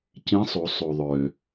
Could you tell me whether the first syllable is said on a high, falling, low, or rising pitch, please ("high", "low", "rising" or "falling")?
rising